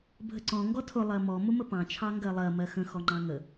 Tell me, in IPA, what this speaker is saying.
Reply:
bʱəǀɔ̃ ŋɡɔtʰʊ lˠɜmɔ mʊməpɑ̃ t͡ʃʰɑŋɡɜlˠɜ mɜxə̃ xɔŋ͡ǃɑ̃ŋə

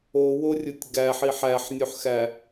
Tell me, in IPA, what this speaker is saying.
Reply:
oworʲutʲ ɡæħi ħæħnʲuħxæ

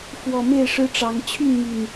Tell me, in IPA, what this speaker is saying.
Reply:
fwɔ˨˩ me˥˨ɪ̯ʂɻ̩˦ʈ͡ʂɑ˨˦ŋ t͡ɕʰy˥˨nmy˨˩n

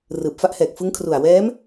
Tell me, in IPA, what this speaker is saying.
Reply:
rɯː˨˩p̚fa˥˩ʔhɛː˨˩k̚ fɯ˦˥ŋkʰru˨˩a̯ wɛː˦˥m

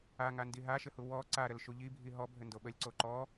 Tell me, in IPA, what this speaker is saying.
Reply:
aŋandi ɦaʃɘhu wɔ ǀaɾəlʃu ʎibʱi ɦɔbʱɘndo ɓəlʲǀo ǃɔ

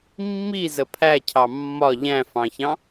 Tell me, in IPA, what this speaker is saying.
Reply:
mːi zəpʰæcʰɑ mːɒ ʎæ̃fɑ̃çɑ̃

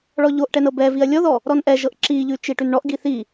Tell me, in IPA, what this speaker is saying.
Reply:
ɭɔʎoʔʈɛn ɤbɛviɐ̯ lʲɔðɔ | ɾɔnʔɛʒɤʔ ǁiʎʉ t͡ʃiʈʉnɳɔʔɡi θi

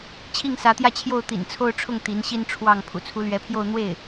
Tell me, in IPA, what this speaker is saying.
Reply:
t͡ɕʰi˥˩ŋsä˧˥t̪jä˥˧t͡ɕʰjo˥˩ʊ̯ t̪ḭ˨˩nt͡sʰo˥˧ʊ̯ʈ͡ʂʰʊ˥˩ŋ t̪i˧˥nɕi˥nʈ͡ʂʰwɑ˥˩ŋ pʰṵ˨˩t͡sʰu˧˥lɥɛ˧˥pʰjo˥˧ʊ̯ n̪we˥˩ɪ̯

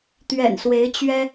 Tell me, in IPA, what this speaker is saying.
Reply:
t̪ɥɛ̰˨˩nswe˧˥ɪ̯ t͡ɕɥɛ˥

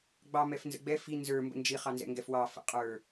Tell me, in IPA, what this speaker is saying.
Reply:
ɡ͡bɑ mɛfnzə̰ɡ͡bɛ fi nzə˞ mbə̰nd͡ʒi χɑnzɛ̰ŋɡɛfwɑ fə̰qʼə˞

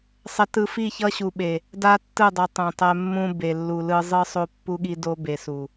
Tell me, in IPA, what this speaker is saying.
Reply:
sˤɛ˨tɯ˨fi˦˨çʌ˦ ɕu˨ɓe˨ | da˦ tːɯ˦˨dˤʌ˨ tˤõ˨tˤɛ˦ mːũ˦be˨lːu˨ lɯ˦ zˤɯ˦sˤo˦pːu˦ɠi˦ do˦be˨su˨

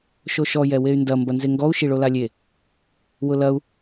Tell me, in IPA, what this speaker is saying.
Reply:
ʃoʃɔ jɛwey̯ndɐ mbɐnzeŋɡɔu̯ ʃiɭolalʲe | wʊlɐu̯

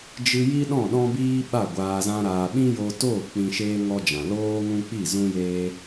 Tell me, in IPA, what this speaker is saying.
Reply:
d͡ʒɨ˧ji˦ ɗɔ̃˦˨ɗɔ̃˦biː˦ ɓa˦˨ɡʷaː˧zã˦ɾaː˧ ɓĩ˦jo˧toː˦˨ k͡pĩ˧ʃeː˦ ŋɔ˦d͡ʒã˨ loː˦ ŋũ˦k͡pi˦˨zũ˦jeː˦

